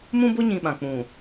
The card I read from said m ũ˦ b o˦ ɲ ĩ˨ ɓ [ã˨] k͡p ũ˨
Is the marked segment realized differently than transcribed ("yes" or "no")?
no